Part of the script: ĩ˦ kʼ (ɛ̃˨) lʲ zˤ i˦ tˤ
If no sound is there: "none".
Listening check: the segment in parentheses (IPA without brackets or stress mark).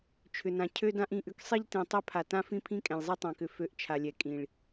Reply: ɛ̃˨